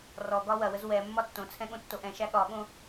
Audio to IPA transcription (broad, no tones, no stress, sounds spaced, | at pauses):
r ɔ ɡ ɒ w ɐ w ə z w ɛ mː ɒ tː õ t͡sʰ ɛ̃ ɠ õ tː o ʔ ɛ̃ ʃ æ ɠ ɒ ɠ õ